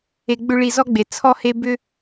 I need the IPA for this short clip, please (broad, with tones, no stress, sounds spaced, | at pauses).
e˨ ɡ͡b ʏ˧ ɭ i˧ z ɔ˦ ɡ͡b e˨ t͡sʰ ɔ˦ h e˦ b ʏ˦